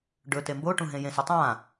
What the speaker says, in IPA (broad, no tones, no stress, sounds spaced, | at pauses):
ɖ ɵ t e m b o ʈ ũ ɦ ẽ j ẽ s ɵ tˤ ã